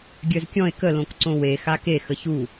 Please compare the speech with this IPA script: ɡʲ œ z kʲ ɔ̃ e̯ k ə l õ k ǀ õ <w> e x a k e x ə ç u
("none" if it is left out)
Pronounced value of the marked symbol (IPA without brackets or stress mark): w